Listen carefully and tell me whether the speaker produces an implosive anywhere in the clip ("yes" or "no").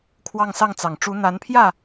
no